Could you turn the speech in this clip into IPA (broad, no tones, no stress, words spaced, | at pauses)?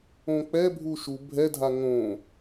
õk͡pɛbʱu ʃu bʱɛdʱa ŋõ